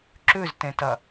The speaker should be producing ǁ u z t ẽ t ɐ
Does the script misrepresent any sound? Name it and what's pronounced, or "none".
u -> ʉ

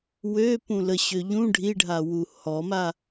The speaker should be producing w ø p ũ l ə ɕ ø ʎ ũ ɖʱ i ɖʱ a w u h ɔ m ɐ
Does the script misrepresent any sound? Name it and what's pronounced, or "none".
ɐ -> a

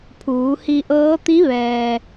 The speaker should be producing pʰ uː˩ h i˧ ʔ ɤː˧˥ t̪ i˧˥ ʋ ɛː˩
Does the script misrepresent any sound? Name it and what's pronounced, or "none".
uː˩ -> uː˩˧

